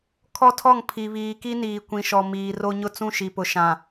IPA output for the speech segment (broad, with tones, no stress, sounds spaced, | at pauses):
kʰ ɔ˦ tʰ ɔ˦˨ ŋ pʰ i˨ β iː˨ k i˦ n iː˨ kʷ ĩ˨ ʃ ɔ˨ m iː˨ r o˦ ɲ ʊ˦ t͡s ũ˦ ʃ i˨ p ʊ˨ ʃ ã˨